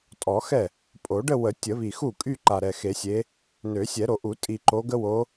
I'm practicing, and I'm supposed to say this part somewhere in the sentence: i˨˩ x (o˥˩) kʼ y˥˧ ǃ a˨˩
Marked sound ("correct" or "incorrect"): incorrect